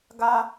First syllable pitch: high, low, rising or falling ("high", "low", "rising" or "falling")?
high